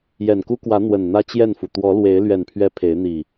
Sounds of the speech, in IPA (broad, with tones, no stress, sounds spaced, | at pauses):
j ɛ˨˩ n k u˦ k w ä˨˦ n̪ w ə˨˩ n n̪ ä˦ t͡ɕ j ɛ˥˨ n f u˩ t̪ w ɔ˨˦ l w e˨˦ ɪ̯ l ɥ ɛ˨˩ n pʰ ɥ ɛ˨˦ pʰ e˨˦ ɪ̯ n̪ i˨˩